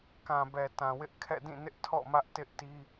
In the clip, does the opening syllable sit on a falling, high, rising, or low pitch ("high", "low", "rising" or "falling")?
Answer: low